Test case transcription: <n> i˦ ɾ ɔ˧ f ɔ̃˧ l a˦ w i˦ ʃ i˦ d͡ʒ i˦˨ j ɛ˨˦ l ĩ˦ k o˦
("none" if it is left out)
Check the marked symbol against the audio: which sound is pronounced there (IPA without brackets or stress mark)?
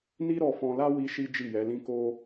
n